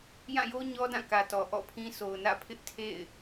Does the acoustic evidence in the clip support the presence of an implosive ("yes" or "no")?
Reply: no